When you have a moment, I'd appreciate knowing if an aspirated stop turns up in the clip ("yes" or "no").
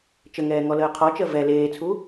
yes